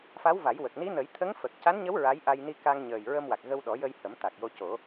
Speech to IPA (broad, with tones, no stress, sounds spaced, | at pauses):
f a˧˥ w v a˨˩˦ j w ə˨˩ k̚ n i˧˥ n ə˨˩˦ j t̪ʰ ə˧˥ ŋ f ə˨˩ k̚ c a˧˥ n ɲ ə˧˥ w ɹ a˧˥ j ʔ a˧ j n i˧ k a˧ ŋ ɲ əː˨˩ j ɹ ə˧ m w a˨˩ k̚ ɣ ə˧ w ɗ ɔ˨˩˦ j ə˧ j h ə˨˩˦ m t̪ a˨˩ k̚ j o˧ c o˨˩˦